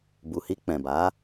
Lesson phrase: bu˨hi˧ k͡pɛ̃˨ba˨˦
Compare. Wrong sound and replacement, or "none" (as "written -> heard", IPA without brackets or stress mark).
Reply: none